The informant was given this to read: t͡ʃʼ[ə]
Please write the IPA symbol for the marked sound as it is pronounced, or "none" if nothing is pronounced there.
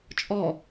ɔ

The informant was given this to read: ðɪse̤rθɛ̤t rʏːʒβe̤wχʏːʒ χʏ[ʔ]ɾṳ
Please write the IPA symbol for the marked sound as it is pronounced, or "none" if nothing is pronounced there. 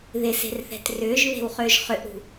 ʔ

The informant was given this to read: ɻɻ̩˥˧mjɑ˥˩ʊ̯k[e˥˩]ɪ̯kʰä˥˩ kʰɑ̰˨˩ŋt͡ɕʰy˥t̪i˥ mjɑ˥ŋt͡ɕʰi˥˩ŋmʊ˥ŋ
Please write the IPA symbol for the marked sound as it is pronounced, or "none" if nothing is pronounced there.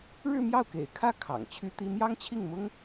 ḛ˨˩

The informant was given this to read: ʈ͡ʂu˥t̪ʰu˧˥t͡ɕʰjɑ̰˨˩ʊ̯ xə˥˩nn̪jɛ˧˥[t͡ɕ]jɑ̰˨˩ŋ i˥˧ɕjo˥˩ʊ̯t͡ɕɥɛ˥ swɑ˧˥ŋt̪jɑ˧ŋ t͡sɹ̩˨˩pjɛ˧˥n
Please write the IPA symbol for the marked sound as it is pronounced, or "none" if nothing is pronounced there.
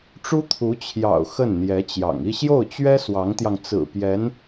t͡ɕ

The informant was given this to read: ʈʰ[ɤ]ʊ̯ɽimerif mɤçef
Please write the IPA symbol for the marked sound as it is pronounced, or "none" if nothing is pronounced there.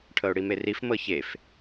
ɤ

